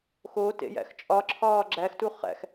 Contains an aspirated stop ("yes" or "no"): yes